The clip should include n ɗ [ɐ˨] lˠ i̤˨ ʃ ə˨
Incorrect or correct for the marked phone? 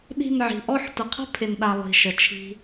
incorrect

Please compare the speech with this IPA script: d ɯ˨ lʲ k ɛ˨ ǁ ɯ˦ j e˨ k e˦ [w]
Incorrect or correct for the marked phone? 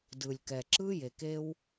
correct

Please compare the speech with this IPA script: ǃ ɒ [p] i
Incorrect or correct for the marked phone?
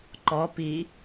correct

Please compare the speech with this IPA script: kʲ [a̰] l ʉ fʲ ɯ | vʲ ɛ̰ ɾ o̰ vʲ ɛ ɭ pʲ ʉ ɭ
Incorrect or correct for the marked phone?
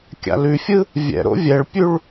correct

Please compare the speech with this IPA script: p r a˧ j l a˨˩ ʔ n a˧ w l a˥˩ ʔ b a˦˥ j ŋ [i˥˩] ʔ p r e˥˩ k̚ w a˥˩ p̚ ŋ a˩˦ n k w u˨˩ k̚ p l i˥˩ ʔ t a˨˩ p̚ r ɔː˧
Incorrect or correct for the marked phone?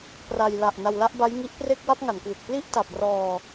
incorrect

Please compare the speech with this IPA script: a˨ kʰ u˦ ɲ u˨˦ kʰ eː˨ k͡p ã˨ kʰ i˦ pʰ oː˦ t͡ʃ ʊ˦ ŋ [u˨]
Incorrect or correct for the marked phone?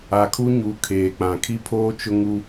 incorrect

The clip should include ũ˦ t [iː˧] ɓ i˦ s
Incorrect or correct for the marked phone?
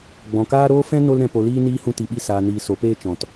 incorrect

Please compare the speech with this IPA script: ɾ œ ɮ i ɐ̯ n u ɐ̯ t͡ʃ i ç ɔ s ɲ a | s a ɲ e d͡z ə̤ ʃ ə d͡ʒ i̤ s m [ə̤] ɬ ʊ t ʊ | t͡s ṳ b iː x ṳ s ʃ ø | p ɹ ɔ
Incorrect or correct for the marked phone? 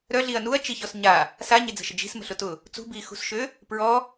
correct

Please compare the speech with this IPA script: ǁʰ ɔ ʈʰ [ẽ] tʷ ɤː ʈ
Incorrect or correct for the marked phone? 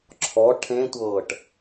correct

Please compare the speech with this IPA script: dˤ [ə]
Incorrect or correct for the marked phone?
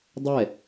incorrect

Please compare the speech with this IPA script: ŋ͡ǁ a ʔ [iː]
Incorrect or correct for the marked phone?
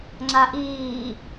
correct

